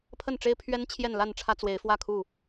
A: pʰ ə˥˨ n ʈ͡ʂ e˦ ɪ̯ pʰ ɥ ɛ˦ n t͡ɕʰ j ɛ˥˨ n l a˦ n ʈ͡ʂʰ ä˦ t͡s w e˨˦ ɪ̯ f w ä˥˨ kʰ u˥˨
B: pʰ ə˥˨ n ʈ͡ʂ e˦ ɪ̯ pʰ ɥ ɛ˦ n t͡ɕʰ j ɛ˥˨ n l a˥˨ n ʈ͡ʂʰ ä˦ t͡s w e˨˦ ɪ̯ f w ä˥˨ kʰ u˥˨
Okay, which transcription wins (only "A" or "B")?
B